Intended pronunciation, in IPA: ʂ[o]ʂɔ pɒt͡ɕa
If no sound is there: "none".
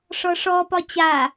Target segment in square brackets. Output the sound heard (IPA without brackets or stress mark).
ɔ